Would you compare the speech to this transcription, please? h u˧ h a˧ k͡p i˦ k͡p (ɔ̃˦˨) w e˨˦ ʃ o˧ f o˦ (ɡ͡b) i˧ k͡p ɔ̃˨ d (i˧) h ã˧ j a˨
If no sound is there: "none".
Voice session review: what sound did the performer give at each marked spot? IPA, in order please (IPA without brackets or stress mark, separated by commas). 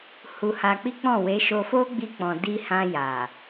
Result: ɔ̃˦˨, ɡ͡b, i˧